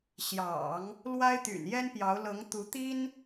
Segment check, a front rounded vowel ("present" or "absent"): present